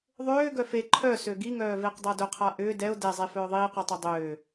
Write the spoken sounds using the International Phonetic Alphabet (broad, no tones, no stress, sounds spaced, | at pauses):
ðˤ øː ɡ œ f e ǃʰ œ s ø ɡ i ŋ œː v eː q dˤ a d œ qʰ a ʔ ʏː d ɛ ʊ̯ d ɛ zˤ e f œː ðˤ iː q ɔ tˤ ø dˤ øː